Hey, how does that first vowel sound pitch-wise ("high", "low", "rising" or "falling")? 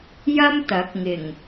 high